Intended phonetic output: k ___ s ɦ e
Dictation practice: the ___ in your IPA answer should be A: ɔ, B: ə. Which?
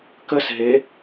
B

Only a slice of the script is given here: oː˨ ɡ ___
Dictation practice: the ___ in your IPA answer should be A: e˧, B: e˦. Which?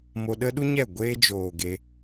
A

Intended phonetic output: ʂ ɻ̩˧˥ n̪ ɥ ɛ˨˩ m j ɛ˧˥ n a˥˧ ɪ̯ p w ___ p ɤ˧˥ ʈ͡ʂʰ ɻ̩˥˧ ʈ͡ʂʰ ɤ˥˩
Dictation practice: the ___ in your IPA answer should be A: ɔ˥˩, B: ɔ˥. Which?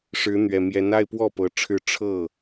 A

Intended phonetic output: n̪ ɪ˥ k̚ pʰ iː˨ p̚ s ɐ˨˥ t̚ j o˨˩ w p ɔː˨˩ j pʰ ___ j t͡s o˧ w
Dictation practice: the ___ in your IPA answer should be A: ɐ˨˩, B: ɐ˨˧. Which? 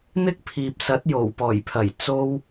A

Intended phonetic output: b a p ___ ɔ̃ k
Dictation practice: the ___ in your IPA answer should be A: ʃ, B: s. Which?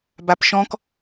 A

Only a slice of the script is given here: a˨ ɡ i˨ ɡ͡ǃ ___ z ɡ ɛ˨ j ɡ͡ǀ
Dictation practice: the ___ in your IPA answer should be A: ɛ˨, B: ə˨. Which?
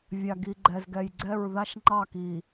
A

